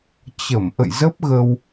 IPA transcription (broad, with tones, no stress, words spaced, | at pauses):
t͡ɕə˧˩m ʔə̰˧˨jzə˦˥p̚ɣə˧w